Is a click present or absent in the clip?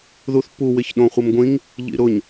absent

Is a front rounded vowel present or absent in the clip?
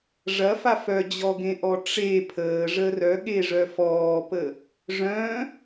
present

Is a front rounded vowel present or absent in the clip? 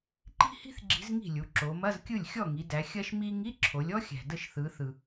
absent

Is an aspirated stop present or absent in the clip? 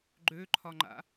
present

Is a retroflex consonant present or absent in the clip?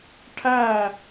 present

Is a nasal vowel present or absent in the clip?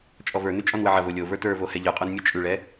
absent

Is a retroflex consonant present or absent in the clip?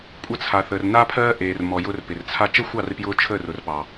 absent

